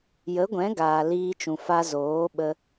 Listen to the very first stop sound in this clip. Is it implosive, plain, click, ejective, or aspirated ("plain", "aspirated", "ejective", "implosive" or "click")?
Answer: plain